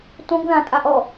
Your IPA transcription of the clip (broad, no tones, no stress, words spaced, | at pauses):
tõɡðãtʼaʔ ɔ